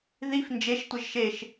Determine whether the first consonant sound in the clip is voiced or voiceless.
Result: voiced